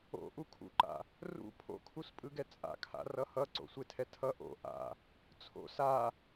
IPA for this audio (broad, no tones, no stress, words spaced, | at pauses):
o̰ ʔukʰṵǃa̰ | rṵ pʰo̰kʰuspʼɯɡɛ t͡sʼa̰kʰa̰ rʌhʌǀo̰ sʷetʰɛtʰʌ ʔo̰ ʔa̰ | t͡sʰo̰ sa